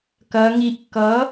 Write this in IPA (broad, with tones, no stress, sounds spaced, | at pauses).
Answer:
k ɐ˩˧ ŋ i˩˧ ʔ k ʌ˩˥